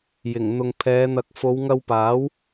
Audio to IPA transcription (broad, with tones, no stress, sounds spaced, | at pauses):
j ɪ˨˩ ŋ n̪ ʊ˨ ŋ pʰ ɛː˨˧ n̪ ɐ˨˥ k̚ f o˨˧ w ŋ ɐ˧ w p aː˨˥ w